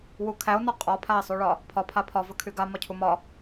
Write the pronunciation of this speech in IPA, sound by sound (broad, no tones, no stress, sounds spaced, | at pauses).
w u kʰ æ o̯ n ɒ qʼ ɒ pʰ a e̯ sˤ u ɭ ɒ | pʰ ɒ pʰ a pʰ ɒ v ə kʰ y ɡ a m ɒ cʰ u m ɒ